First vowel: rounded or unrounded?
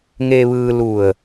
unrounded